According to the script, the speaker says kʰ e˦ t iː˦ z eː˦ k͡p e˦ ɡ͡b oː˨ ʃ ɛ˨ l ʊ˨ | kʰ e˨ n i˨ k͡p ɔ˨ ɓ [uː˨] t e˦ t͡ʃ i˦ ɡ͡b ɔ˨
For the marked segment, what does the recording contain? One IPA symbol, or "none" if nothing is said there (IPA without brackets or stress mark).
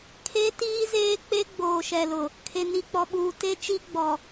uː˨